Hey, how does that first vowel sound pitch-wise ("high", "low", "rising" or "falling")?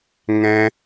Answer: high